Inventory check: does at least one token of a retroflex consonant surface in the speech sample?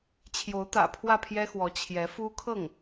no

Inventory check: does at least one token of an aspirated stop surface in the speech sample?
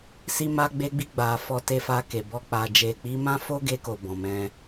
no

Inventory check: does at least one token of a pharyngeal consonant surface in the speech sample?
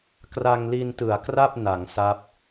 no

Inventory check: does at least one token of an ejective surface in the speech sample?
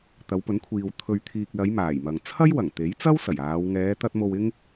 no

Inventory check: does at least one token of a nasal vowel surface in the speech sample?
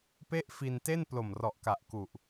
no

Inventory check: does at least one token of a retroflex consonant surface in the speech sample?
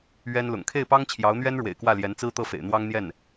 yes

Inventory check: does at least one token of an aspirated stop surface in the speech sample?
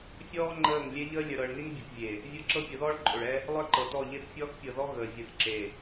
no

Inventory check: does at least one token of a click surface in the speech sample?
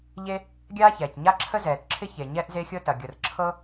yes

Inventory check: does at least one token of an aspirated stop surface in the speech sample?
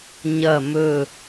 no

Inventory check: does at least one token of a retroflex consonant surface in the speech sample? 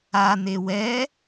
no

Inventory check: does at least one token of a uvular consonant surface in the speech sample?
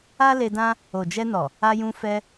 no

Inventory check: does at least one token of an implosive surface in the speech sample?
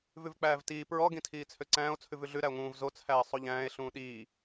yes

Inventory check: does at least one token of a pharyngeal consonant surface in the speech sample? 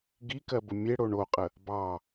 no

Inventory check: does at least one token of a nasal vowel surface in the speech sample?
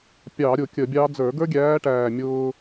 no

